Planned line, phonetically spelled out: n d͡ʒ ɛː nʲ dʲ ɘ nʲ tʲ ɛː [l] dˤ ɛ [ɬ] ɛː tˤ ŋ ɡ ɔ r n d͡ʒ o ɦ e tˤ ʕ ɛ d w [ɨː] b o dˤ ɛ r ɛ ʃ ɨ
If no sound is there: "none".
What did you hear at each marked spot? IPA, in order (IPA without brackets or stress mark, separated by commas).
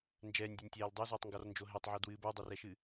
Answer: l, z, ɨː